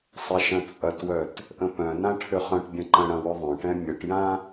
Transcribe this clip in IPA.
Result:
sˤ ɛ ʃ ɐ̃ t͡sʼ ɐ t w œ t | ʔ ə̃ p œ̃ n ã ʈʰ ʏ χ œ̃ ʈ bʲ ɐ̃ ǃ ə̃ ɽ ɐ̃ w ʏ ðˤ œ̃ ʈ ɛ̃ mʲ ə ʈ j ã

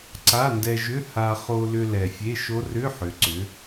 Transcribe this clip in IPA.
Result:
ǀ a˧˥˧ n d ɛ˧ ʒ ʏ˧˥˧ h a˧ χ o˧ l ʏ˧ l ɛ˨˩ fʲ e˧˥˧ ʃ o˦˥ r ʏ˧˥˧ ħ ʏ˩˧ ǀ ʏ˩˧

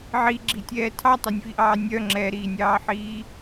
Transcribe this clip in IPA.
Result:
ʕ i ɡ͡ǁ i tʲ ɛː tʰ ɑ tˤ œ nʲ v i ʔ ɑː nʲ œ ŋ͡ǁ ɛ ɾ iː nʲ ɑː ħ iː

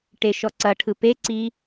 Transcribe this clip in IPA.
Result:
ʈ e ʃ ɔ ǀ ɐ ʈʰ ɯ p e ǀ i

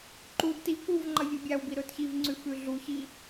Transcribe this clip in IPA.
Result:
ǃ u d t i k u v ŋ͡ǃ ɐ vʲ u bʲ a w b i ɾ ɵ t ç i v ŋ͡ǀ ʉ f ʉ ɮ u ç i

